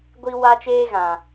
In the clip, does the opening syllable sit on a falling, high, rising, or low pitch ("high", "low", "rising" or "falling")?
high